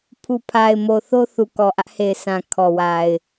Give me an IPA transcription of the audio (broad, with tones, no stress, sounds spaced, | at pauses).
pʰ u˨ pʰ a˨ ɪ̯ m o˨ θ o˦ θ u˨ k ɔ˨ ʔ ä˦ ʔ h e˨ ɪ̯ s ã˨ kʰ ɔ˨ w a˨ ɪ̯